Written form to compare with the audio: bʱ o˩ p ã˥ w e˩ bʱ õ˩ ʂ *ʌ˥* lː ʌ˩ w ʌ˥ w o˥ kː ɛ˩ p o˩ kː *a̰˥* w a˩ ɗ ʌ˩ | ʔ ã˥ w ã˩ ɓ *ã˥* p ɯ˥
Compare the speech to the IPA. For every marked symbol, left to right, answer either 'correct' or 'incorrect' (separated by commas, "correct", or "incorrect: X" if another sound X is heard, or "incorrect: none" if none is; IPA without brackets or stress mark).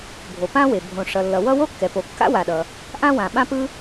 incorrect: ʌ˩, correct, correct